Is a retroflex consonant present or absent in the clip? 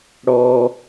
present